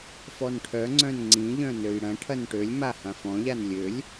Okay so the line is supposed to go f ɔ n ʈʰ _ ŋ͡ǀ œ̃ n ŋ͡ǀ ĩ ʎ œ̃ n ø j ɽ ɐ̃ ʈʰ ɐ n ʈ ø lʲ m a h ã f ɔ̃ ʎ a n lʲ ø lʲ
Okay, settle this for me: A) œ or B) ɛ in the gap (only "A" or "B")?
A